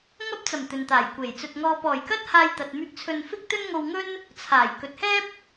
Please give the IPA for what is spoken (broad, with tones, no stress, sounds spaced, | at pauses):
ŋ ɐ˥ p̚ t͡s ɐ˨˩ m t̪ ɵ˨ n t̪ aː˨˩ j kʷ e˨˩ j t͡s ɵ˧ t̚ ŋ ɔː˨ p ɔː˨˩ j k ɐ˥ t̚ h aː˧ j t̪ ɐ˨ t̚ m yː˧ k̚ t͡sʰ ɵ˧ n f ɪ˥ k̚ t̪ ɵ˥ n ŋ o˧ w ŋ ɵ˥ n | t͡sʰ aː˨˩ j k ɵ˨ t̚ h ɛː˥ p̚